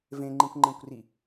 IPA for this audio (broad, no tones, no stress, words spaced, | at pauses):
vẽŋ͡ǃĩkʷŋ͡ǃẽkʷri